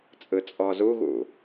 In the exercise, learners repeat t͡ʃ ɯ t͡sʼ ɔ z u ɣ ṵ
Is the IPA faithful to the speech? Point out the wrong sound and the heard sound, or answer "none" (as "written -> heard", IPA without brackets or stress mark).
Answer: t͡ʃ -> t͡sʼ